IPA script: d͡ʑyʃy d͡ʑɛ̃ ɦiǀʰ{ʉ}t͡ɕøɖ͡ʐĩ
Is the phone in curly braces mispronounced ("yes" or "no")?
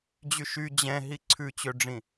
no